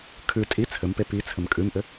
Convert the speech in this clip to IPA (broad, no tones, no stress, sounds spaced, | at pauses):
kʰ ʉ tʼ i t͡sʰ ɘ m p e p i t͡sʰ ɘ m kʼ ʉ m ʔ ɘ